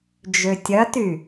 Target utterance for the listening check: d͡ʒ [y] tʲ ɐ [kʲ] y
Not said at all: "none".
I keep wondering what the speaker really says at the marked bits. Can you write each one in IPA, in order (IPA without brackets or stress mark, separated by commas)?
ø, t